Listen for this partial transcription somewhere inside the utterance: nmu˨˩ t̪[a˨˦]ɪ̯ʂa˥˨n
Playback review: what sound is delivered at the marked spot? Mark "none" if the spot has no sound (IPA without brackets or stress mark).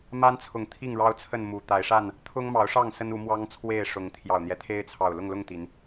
a˨˦